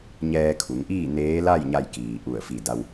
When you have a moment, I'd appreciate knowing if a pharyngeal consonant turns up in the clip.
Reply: no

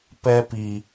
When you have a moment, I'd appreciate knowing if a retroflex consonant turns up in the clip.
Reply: no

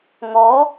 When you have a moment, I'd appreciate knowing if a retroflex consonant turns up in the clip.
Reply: no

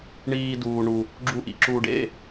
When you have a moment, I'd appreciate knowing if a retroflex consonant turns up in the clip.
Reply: yes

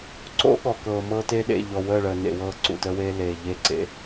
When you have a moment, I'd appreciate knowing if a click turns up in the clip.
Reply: yes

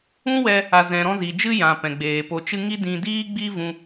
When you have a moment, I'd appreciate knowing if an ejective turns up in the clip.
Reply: no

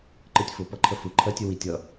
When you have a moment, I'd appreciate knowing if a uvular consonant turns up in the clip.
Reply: no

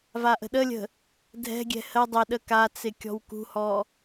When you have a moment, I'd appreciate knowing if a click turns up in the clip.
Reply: no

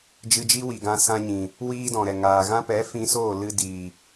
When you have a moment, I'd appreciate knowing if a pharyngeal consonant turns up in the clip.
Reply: no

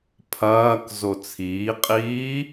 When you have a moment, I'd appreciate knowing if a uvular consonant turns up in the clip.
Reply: yes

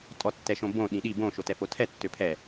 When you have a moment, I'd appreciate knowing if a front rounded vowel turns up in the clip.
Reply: yes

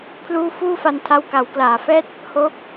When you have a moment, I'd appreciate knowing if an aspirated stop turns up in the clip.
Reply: yes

